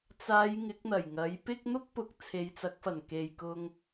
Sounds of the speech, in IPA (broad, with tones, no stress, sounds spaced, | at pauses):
t͡s aː˨˧ j ŋ ɪ˨˥ k̚ n̪ ɐ˨˩ j ŋ ɐ˨˥ j p ɪ˥ k̚ n̪ ʊ˥ k̚ p ʊ˨ k̚ t͡sʰ e˨˧ j t͡s ɐ˨˥ k̚ f ɐ˨˩ n k e˨ j k ʊ˧ ŋ